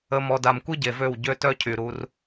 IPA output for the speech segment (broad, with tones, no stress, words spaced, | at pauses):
ə˧mɔ˧da˧m kʷi˦ ɟe˨vø˦˨w ɟø˦tœ˦ cʰy˨ ɾu˧r